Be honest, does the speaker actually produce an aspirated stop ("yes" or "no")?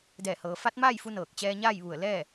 no